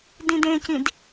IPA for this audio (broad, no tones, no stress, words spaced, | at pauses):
dĩdẽcĩd